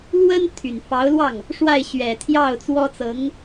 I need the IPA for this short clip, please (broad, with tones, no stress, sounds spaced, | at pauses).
l w ə˥ n t̪ʰ y˨˩ n f ɑ˧˥ ʊ̯ l w ɑ˥˩ ŋ | ʂ w a˥˩ ɪ̯ ɕ ɥ ɛ˨˩ t̪ʰ j ɑ˥˩ ʊ̯ t͡s w ɔ˥ t͡s ɤ˧˥ ŋ